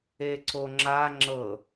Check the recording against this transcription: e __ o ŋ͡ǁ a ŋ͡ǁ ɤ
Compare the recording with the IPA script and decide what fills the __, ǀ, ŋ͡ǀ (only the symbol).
ǀ